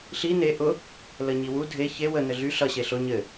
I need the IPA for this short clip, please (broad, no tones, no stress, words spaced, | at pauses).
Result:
ɬi ne ʔʊ | ləɲiwu dʱe çe wə nɘɮy ɬʌ ɕeɬʊ ɲɘ